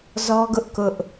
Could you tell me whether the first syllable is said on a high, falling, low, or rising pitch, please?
high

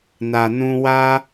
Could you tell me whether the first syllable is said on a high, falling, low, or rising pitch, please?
low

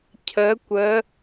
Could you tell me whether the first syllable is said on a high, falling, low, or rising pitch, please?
rising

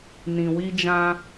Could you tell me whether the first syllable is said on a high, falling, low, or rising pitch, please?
low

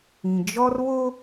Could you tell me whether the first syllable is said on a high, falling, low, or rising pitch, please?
low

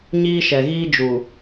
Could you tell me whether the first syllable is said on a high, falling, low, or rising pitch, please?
high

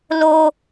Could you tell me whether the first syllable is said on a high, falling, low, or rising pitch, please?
high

